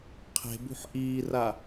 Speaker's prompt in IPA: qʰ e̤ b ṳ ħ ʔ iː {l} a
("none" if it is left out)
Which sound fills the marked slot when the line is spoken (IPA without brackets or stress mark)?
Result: r